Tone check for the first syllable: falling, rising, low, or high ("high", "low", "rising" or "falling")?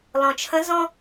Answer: low